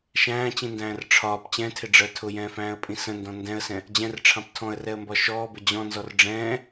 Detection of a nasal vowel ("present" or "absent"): present